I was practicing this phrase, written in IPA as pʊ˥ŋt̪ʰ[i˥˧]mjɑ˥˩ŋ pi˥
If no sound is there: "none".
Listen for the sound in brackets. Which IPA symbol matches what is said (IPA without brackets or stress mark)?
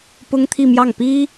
i˥˧